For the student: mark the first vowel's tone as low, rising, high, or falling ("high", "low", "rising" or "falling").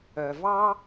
low